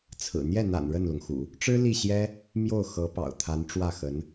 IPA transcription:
t͡sʰɹ̩˨˩ n̪jɛ˥˩n̪a̰˨˩n ɻə˥˩nlʊ˩ŋxṵ˨˩˦ | ʈ͡ʂɻ̩˥ li˥˩ɕjɛ˥ | mjo˥˩ʊ̯xɤ˧˥pɑ̰˨˩ʊ̯ t̪ʰa˧˥nʈ͡ʂwä˥˩xə˧˥n

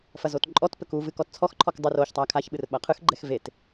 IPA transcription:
fɐzotǃʼɔtpɘk uvɨ kɔtt͡sʰɔxǃʰɔk dˤɨroçtˤa kʰaçɓɨr ɓɐqʰɨxɡ͡ǃɛx vet

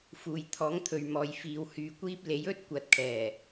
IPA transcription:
fuː˨jt̪ʰɔː˨˥ŋt̪ʰɵ˨ɥ mɔː˨jfiː˨˧w hyː˧kʷiː˥p̚ le˨˥j ɵ˥t̚ kʷɐ˨˥t̚kʰɛː˨˩

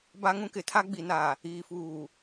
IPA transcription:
ba˦ŋũ˦kɪ˨˦tʰa˦ ɡ͡bi˨na˨ | iː˨fuː˨

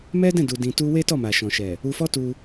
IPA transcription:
mɛ˦dɛ̃˦˨ du˧dĩ˧tu˦ we˦tɔ˦˨ma˨ ʃɔ̃˨ʃɛ˨ | u˧fɔ˦tu˧

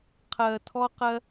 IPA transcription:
qʰɜ˧tʰɔ˦ qɜ˦

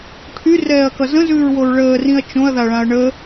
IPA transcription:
ʈʰyrɛːɐ̯kʌ zə̃zʉːɹwoɹ ɭəːrĩɐ̯ t͡ʃõɐ̯ðaɭãɐ̯ ɳə

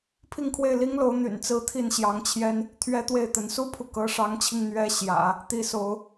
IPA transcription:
pʰi˥˧ŋkʰwe˥˩ɪ̯li˥ŋlo˧˥ʊ̯ n̪y̰˨˩nt͡sɹ̩˥t̪ʰi˥˩n ɕjɑ˧˥ŋt͡ɕʰjɛ˥n | t̪ʰɥɛ˥t̪we˥˩ɪ̯t̪ə˧˥n su˥pʰu˨ kɤ˧˥ʂɑ˧˥ŋt͡ɕʰi˧ŋ n̪ɥɛ˥ɕjä̰˨˩˦ | t̪i˥so˧˥ʊ̯

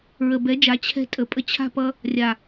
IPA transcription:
ɹə˨bɛ˨˦d͡ʒa˨˦ t͡ɕʰɛ̤˧ tʼə˨pʼə˧t͡ɕʰa̤˦˨ pʌ˧ | rʲa˨

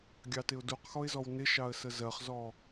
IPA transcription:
ɡʲɑtɪʊ̯duqxɔɪ̯ zɔwnɪʃɑə̯ səzɜχzɔ

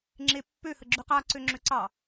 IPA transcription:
ŋ͡ǁepːø həɡ͡ǁʉqaǀø ŋ͡ǁøǀɑ

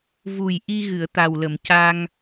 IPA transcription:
vu˨˩jʔi˧ ɣɨ˨˩˨ə̯t̪a˨˩wlə˨˩˨mca˧ŋ

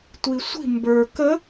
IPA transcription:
tʷisʷi̤ mbə˞ kə

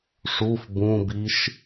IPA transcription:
ʂuf bũbiʃ

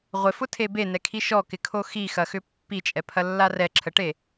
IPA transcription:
ʁʷɪfʊtʰe benɛkʰi ʃɔkɪkʰo xixɐxʏ pːit͡ʃʼɛpʰɐlːa rɛǁʰəʈe

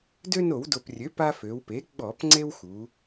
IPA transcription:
dø˦no˧˩˧wdo˨˩prʲø˩˥ pa˦fø˩˧wpe˩˥ ɡ͡bɔ˧˩˧p ŋ͡ǀe˦wxu˩˧

